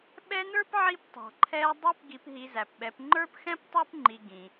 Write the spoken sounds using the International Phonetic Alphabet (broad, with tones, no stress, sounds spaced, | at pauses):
ɓ ɛ˦ n ə˞˥ p ʕ i˦ p tˤ ɑ̤˨ ǃʰ ɛː˦ dˤ i˦ p ɡ i˨ p ɦ i˨ z æ˩ p ɓ ɛ˨ p ŋ͡ǃ ə˞˦ p x ɛ̃˦ p tˤ ə˞˥ p ŋ͡ǃ i˨ ɡ ĩ˩